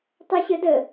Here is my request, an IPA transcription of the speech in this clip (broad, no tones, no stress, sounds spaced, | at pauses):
tˤ ɛ ɕ ə d ə